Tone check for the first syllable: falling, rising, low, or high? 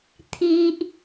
high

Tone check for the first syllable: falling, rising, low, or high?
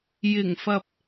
low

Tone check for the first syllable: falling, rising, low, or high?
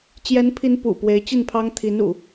rising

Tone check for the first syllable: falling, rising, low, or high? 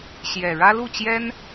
low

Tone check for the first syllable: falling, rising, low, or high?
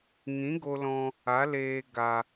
rising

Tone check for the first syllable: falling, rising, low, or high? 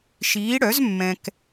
rising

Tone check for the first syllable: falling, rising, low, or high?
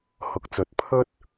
rising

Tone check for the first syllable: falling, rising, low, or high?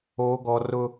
high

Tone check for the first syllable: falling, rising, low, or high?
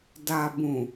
low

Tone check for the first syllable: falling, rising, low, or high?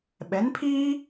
rising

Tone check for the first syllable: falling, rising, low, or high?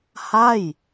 falling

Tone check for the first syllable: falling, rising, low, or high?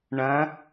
rising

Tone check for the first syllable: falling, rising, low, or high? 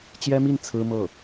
high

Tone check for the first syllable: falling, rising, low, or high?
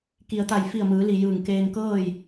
low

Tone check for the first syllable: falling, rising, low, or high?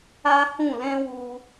high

